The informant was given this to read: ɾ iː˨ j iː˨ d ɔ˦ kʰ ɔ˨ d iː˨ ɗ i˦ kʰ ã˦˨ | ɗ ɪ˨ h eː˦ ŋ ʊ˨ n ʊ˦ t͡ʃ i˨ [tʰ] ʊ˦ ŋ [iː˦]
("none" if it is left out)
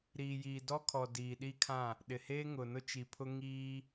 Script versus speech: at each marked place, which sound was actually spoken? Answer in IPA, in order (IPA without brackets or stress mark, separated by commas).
pʰ, iː˦